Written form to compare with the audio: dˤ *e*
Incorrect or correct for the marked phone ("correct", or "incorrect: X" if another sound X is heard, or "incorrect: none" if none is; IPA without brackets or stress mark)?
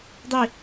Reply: incorrect: i